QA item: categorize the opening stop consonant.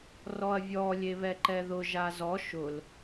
click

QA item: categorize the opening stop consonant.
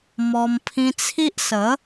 aspirated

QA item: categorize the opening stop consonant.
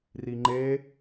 click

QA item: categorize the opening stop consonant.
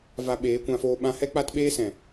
implosive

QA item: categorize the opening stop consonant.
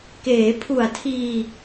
plain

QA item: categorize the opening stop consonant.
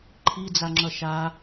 click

